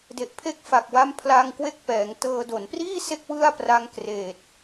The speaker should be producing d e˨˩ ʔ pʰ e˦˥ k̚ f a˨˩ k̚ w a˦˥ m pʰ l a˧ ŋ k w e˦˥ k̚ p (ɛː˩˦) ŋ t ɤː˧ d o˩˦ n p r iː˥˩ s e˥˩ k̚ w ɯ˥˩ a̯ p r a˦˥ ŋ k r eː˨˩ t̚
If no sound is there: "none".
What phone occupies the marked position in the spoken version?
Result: ɛː˩˦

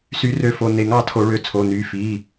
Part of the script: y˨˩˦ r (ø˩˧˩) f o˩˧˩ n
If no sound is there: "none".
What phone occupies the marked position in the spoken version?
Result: ø˩˧˩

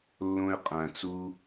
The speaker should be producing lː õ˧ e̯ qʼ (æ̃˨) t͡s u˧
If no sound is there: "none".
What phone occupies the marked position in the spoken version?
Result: æ̃˨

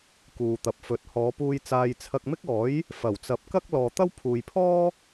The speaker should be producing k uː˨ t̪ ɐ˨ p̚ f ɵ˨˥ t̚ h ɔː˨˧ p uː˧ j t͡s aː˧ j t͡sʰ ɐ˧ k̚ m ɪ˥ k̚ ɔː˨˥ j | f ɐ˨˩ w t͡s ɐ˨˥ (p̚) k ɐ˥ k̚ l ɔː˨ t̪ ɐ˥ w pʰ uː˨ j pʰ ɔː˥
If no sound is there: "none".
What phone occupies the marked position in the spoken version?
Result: p̚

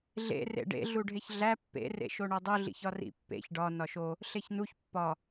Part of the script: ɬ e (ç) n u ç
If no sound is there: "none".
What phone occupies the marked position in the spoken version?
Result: ç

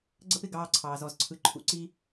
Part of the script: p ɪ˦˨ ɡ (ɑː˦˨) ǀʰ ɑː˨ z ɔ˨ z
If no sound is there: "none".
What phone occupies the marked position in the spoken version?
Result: ɑː˦˨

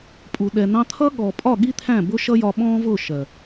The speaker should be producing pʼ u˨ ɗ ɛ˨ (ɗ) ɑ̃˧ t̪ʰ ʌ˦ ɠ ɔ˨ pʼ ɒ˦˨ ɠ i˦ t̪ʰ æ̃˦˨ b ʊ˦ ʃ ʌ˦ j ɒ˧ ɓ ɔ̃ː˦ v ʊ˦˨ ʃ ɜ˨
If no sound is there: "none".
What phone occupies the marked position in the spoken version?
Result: n̪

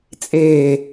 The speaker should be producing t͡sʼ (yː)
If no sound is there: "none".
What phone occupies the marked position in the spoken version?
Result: eː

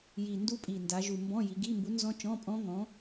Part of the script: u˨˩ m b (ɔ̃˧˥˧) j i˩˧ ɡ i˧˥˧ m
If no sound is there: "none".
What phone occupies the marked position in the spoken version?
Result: ɔ̃˧˥˧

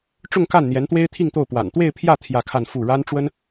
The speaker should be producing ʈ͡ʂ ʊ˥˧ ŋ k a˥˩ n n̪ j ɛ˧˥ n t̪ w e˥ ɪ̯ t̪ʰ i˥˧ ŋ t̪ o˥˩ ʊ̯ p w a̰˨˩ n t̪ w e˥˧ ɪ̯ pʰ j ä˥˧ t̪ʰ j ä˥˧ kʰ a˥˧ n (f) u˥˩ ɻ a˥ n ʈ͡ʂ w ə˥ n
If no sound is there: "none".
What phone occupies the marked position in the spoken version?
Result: f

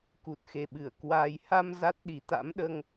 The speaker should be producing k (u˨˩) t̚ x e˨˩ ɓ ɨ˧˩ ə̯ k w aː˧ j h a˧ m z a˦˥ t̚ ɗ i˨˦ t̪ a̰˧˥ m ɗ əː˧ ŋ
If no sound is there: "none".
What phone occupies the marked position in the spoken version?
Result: u˨˩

